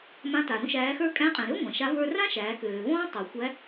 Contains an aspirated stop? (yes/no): no